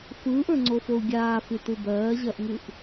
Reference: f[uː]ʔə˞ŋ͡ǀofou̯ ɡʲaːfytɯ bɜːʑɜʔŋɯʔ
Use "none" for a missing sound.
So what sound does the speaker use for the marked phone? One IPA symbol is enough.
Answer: ɯː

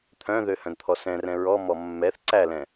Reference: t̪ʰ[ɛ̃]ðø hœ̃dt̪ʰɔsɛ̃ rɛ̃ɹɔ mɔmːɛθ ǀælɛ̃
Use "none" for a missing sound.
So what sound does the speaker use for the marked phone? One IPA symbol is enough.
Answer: œ̃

